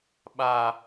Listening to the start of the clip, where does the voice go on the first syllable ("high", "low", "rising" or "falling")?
high